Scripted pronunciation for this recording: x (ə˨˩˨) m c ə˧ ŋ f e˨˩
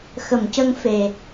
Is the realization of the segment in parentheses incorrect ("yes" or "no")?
no